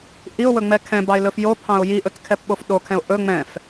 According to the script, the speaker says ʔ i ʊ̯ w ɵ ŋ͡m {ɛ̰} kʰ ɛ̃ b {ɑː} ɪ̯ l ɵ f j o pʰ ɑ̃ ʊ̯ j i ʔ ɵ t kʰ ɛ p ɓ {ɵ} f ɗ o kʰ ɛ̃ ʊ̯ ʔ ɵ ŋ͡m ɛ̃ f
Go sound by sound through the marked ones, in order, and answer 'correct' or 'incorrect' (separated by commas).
incorrect, incorrect, incorrect